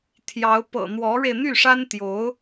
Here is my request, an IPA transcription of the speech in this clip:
t̪ʰ j ɑ˧˥ ʊ̯ p ɤ̰˨˩ n̪ w ɔ˧˥ ɻ e˧ ɪ̯ n̪ y˥˩ ʂ a˥ n t̪ j o˧˥ ʊ̯

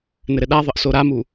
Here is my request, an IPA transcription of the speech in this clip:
n ɘ ɾ ɘ ɗ a ðˤ ə ʔ s o ɾ a m u

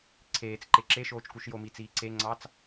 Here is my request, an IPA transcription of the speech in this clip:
ǀʰ eː t͡s ǃ e ǁ e ʃ oː t͡ʃ k u ʃ j o m i t͡s iː ǀ e ŋ͡ǀ ɑ t͡s

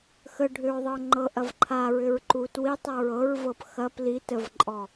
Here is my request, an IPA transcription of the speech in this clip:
x ə ɖʱ ʏ ɹ ðˤ ɤ ŋ͡ǃ ɤ ʔ ɐ v ǃʰ a ɹ ʏ ɹ ǃ u t w i tˤ ɐ ɹ ɤ ɹ v ɤ p x ɐ p l i t ə v ǃʼ ɔ

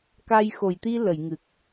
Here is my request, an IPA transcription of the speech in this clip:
k a˧ j x o˨˩˨ j t̪ i˧ l ə˨˩˨ j ŋ ɨ˨˩ k̚

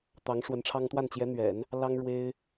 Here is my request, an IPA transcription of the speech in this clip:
t̪ ɑ˧˥ ŋ ʂ w ə˧˥ n ʈ͡ʂʰ ɑ˥ ŋ t̪ w a˥˩ n t͡ɕ j ɛ˧˥ n̪ ɥ ɛ̰˨˩˦ n | l ɑ˥ ŋ ɻ w e˥ ɪ̯

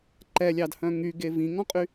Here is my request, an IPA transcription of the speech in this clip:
ǃ ɛ lʲ ɑ d h œ̃ ŋ y ɡ e v ĩ ŋ ɔ̃ qʼ y

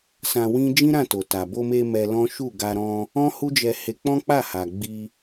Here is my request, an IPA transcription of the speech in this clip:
s ã˧ w ĩ˦ d͡ʒ ĩ˦ ɾ ã˦˨ t o˨ t a˨ b o˧ m e˧ m ɛ˧ l ɔ̃˦ ʃ u˦˨ ɡ a˧ ɾ ɔ̃˧ | ɔ̃˦ h u˦ d͡ʒ ɛ˧ h e˧ k͡p ɔ̃˦ k͡p a˦˨ h a˨ ɡ͡b i˧

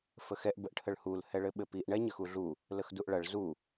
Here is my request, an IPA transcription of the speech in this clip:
f ə x ɛ ʔ b ə ʔ ʈʰ ə ɭ h u l h ɛ ɭ ɘ ɓ ɘ p i ʔ ɳ ɛ ɲ ə x u ɮ u | l ə x d u ʔ ɭ ɐ ɭ z u

